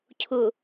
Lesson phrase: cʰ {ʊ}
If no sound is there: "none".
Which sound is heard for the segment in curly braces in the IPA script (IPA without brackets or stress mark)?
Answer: ʊ